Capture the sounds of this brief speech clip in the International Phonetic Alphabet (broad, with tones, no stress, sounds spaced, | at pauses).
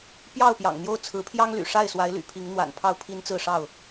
p j ɑ˥˨ ʊ̯ p j ɑ̰˨˩ ŋ n̪ j o˥˨ ʊ̯ t͡sʰ ɹ̩˨˦ pʰ j ɑ˦ ŋ l y̰˨˩ ʂ a˥˨ ɪ̯ s w a˨˦ ɪ̯ l y̰˨˩ pʰ i˨˦ ŋ n̪ w a̰˨˩ n pʰ ɑ˥˨ ʊ̯ pʰ i˦ n t͡s ɹ̩˥˨ ʂ ɑ˥˨ ʊ̯